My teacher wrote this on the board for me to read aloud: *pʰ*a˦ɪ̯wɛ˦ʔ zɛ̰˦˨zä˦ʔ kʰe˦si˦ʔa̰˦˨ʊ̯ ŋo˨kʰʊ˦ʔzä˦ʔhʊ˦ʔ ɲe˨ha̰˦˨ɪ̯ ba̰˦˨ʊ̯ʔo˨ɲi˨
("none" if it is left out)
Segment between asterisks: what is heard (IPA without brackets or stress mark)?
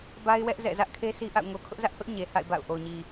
b